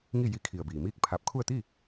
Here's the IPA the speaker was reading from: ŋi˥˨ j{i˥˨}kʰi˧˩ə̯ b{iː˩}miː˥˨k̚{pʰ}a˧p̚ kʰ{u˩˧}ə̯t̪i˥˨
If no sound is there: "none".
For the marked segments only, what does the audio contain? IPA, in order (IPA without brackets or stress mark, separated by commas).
i˧˥, iː˩, pʰ, u˥˨